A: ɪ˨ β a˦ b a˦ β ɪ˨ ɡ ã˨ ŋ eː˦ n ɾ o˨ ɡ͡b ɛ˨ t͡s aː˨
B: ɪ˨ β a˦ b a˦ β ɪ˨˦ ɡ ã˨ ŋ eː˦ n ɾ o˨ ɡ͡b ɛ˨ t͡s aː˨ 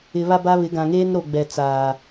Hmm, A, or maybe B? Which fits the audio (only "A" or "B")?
B